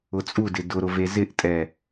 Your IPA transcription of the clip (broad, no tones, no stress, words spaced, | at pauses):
ʊt͡sʼudɪ dʊɾʊve zɪʔtʼɛ